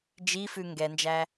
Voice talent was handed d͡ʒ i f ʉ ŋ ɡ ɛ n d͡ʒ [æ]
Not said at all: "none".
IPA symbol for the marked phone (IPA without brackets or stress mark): æ